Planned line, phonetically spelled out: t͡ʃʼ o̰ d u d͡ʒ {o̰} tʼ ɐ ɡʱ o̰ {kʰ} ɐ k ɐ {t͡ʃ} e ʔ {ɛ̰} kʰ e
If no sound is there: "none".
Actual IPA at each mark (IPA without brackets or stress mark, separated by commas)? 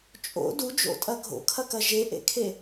o̰, kʰ, ʒ, ḛ